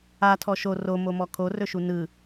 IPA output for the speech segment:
a tʰ ɔ ʃ o r o m o m ɔ kʰ o r ɵ ʃ u n ɯ

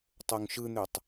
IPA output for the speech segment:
tˤ o ŋ ʃ ɯ n̪ ø tˤ

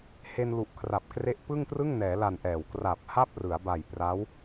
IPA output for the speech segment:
h e˧ n l u˨˩ ʔ kʰ r a˨˩ p̚ k r e˦˥ ʔ p ɯ˥˩ ŋ t r ɯ˥˩ ŋ n ɛː˩˦ l a˨˩ n ʔ ɛː˨˩ w k r a˨˩ p̚ h a˥˩ p̚ r ɯ˩˦ a̯ b a˨˩ j p r a˦˥ w

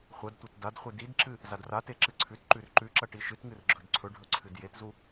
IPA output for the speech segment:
χʷ ɐ d tʷ e t d a d χʷ ɨ d i d ǁ ɨ | z a d r a t e ǁ ɨ ǀʰ ʉ t ǃ ʉ r ǃ ʉ ǁ ɐ ʈ i ʃ ɨ t ŋ ɨ r ɡ͡ǁ ɵ d ǀʰ ɵ ɖʱ ɵ ǀʰ ɨ d j e t z u

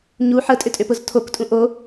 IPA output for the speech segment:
ɲ u ħ ə tʼ ʏ tʼ ʏ p ʊ z tʰ o k tʼ ũ ʔ o

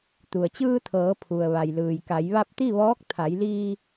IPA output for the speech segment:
t̪ u˩ ə̯ t͡ɕ ɯː˧ t̪ʰ ɤː˩˧ pʰ u˩ ə̯ ʋ a˩ j l ɯː˩ j k a˩˧ j ʋ a˧ p̚ t̪ i˥˨ ʋ ɔː˧˥ k̚ t̪ʰ a˩˧ j l iː˧

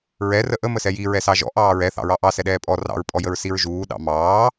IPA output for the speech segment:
ɹ ɛ r ə ʔ ə m ə s ɛ j i ɹ ɛ s ɑ ʒ ɔ̰ ʔ ɑː ɹ ɛ θ ɑ̰ ɹ ɑ ʔ ɑ s ɛ ɗ ɛː pʼ ɔ r ɑ̰ ɹ pʼ ɔ j ə ɹ s i ɹ ʒ uː ɗ ɑ̰ m ɑː

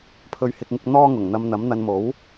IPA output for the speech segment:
pʰ ɵ˧ ɥ h ɪ˧ k̚ ŋ ɪ˧ k̚ n̪ ɔː˥ ŋ ʊ˨˩ ŋ n̪ ɐ˧ m n̪ ɐ˨˥ m n̪ ɐ˧ n m o˨˥ w

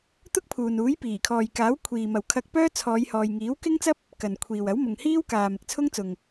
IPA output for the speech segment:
t̪ ʊ˥ k̚ pʰ uː˨ n uː˨˥ j p iː˨˩ kʰ ɔː˨ j k aː˨˥ w kʷʰ iː˨ m ɐ˨ w kʰ ɐ˧ k̚ p œː˥ t͡sʰ ɔː˨˧ j h ɔː˨ j ŋ iː˨˥ w k ɪ˥ ŋ t͡s ɐ˥ p̚ | k ɐ˨ n kʷʰ iː˨ w ɐ˨˥ w m ʊ˨ ŋ h iː˥ w k aː˨ m ɪ˨ k̚ t͡sʰ ʊ˥ ŋ t͡s ʊ˨ ŋ

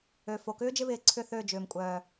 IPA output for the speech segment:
ø˨ f o˨ k ʏː˦ d͡ʒ ɪ˧ β ɪː˨ ǀʰ ʏ˦˨ θ ø˦˨ d͡ʒ ʏː˨ m kʷʼ œː˨

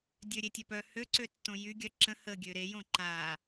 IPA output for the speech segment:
dʲ ø ɾʲ e tʲ ø p œ h ø ǀ ø tː õ j y ɡʲ œ ǁ ə̃ h ə ɡʲ ø ɾ e j õ ǃ a

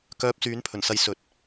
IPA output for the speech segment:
k œː˧ p̚ s yː˨˥ n pʰ ɵ˨˩ n s ɐ˧ j s ɵ˨ t̚

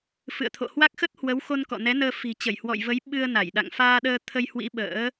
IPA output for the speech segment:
f ɨ̰˧˨ ə̯ t̪ʰ o̰˧˨ h w a˦˥ k̚ x ə˦˥ t̚ h w ə˨˦ w x o˧ n k ɔ̰˧˨ n ɛ˨˦ n əː˧ f i̤˨˩ t͡ɕ ə˧˩ j h w ɔ̰˧˨ j v ə˨˦ j ɓ ɨ˧ ə̯ n a˧˩ j ɗ a̰˧˨ ŋ f aː˧ ɗ əː˧ t̪ʰ ə˧ j h w ḭ˧˥ ɓ ə̰ː˧˥

